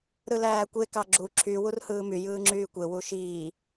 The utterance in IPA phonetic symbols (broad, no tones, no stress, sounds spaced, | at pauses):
ɾ ɯ l æː kʷ e k ɑ ɡ͡ǁ u ǁʰ y w u r h ɯː m y j ɯː ŋ͡ǁ yː kʷ e w u ʃ iː